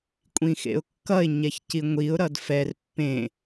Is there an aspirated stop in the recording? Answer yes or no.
no